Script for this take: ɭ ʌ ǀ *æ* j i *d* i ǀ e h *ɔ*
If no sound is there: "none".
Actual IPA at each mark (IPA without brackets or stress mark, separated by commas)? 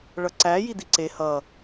æ, d, ʌ